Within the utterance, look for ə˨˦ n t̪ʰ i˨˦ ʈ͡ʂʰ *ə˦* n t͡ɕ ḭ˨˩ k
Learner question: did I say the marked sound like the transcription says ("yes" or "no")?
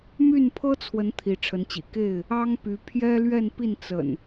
no